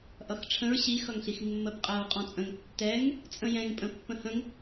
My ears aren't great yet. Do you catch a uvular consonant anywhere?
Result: yes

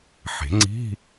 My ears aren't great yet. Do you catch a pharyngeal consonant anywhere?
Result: yes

